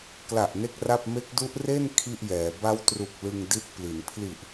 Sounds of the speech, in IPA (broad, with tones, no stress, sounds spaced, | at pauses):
k l a˨˩ ʔ n e˥˩ k̚ r a˥˩ p̚ m e˦˥ k̚ d u˦˥ ʔ r e˥˩ n kʰ i˥˩ ʔ j ɛː˩˦ b a˦˥ w t r u˨˩ k̚ l ɯ˧ ŋ d i˦˥ t̚ p l i˩˦ n pʰ l i˨˩ ʔ